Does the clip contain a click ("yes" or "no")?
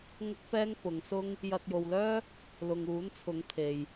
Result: no